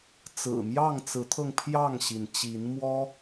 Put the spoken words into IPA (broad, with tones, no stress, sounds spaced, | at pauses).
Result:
t͡s ɹ̩˨˩ m j ɑ˥˨ ŋ t͡s ɹ̩˨˦ t̪ʰ ɤ˧ ŋ pʰ j ɑ˥˨ ŋ ɕ i˩ n t͡ɕ i˨˦ n m w ɔ˦